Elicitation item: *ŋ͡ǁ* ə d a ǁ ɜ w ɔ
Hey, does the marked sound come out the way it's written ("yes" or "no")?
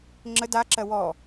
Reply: yes